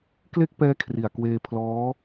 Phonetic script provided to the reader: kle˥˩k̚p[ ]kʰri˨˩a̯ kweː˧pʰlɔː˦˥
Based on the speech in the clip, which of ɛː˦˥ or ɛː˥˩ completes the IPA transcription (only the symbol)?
ɛː˦˥